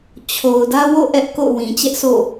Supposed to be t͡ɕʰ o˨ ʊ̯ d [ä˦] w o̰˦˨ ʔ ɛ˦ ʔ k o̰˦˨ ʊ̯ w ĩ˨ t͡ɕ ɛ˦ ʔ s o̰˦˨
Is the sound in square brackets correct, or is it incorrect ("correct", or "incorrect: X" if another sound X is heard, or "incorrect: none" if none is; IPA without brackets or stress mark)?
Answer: correct